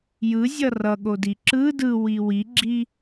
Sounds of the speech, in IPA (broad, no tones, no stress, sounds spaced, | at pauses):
j ɯ zʲ ʌ r ʌ ɠ o d i ǁ ɯ d ɯ w i w i ɡ͡ǁ i